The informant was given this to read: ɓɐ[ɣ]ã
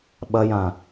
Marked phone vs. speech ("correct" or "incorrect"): incorrect